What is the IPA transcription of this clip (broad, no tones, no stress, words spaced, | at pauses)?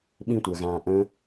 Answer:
ɓĩtʷəːɣãː ʔə̃